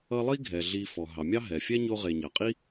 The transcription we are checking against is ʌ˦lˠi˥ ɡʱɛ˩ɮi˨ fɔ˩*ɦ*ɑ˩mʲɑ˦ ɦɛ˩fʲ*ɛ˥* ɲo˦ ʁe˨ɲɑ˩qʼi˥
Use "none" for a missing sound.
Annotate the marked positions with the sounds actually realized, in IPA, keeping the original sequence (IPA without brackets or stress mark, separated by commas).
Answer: ɦ, ɛ˥